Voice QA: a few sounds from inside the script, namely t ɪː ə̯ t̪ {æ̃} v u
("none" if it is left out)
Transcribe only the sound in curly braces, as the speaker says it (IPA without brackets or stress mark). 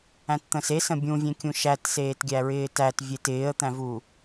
æ̃